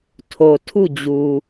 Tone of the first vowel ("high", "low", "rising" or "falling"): low